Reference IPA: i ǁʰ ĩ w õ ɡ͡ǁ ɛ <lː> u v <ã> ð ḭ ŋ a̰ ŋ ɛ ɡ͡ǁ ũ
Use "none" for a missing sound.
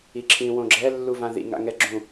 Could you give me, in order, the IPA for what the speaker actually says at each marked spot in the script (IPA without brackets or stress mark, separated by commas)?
lː, ã